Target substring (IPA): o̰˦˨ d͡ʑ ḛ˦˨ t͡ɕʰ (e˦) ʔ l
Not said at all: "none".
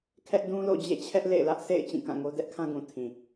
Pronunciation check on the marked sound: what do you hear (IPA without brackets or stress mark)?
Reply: ɛ˦